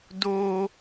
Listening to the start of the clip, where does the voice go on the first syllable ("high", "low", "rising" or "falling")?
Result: high